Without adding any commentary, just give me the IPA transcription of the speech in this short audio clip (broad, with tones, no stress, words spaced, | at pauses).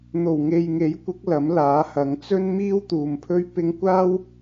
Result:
n̪o˨˩wŋe˨jŋe˨˥jkʷɪ˨˥k̚ lɐ˨˥mlaː˨˥hɐ˨˧ŋ t͡sɵ˥nmiː˥wt̪uː˨mpʰɵ˥ɥ pɪ˥ŋ kʷaː˥w